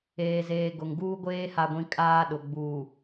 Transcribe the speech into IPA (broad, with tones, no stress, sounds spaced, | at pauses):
eː˨ z eː˨ ɡ ʊ˨ ŋ ɡ uː˦ ɡʷ eː˦ h a˨ ɡʷ ĩ˨ kʼ aː˦ ɗ ʊ˨ ɡ͡b uː˨